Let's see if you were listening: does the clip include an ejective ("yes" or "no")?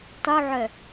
no